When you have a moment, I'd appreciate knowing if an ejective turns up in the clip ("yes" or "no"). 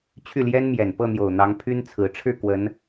no